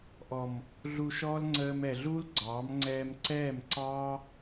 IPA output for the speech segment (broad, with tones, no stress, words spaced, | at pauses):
ʔɔ˨m | ɮu˧ʃɔː˦l ŋ͡ǀəː˧m ɛ˨ɮuː˦lɡ͡ǀɑː˨˦m ŋ͡ǀɛː˧mǀɛː˦˨mǀɑː˦